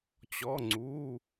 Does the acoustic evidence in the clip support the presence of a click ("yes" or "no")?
yes